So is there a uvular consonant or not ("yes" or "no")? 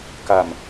no